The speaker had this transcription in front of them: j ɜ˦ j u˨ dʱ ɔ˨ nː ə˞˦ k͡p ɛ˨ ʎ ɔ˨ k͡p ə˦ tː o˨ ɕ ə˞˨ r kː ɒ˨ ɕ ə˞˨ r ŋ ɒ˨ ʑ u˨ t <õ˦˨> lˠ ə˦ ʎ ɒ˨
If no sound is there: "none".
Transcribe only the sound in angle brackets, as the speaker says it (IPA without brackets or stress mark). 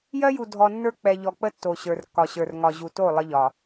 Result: o˦˨